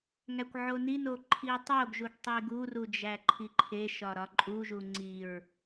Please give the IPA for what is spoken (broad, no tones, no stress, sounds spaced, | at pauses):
ŋ æ kʷ ʕ o n i n o ǃʰ i tˤ o ɡ ʒ u ɡ tˤ i ɡ u r u d͡ʒ æ ǃʰ i ǃʰ e ʃ ɒ ɾ ɒ ǃʼ u ʒ u ŋ͡ǀ i ɹ